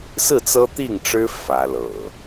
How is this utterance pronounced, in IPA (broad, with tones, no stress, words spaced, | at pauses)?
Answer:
sɹ̩˥˨t͡sɤ˦t̪i˥˨ŋʈ͡ʂɻ̩˦ fä˨˦lɤ̰˨˩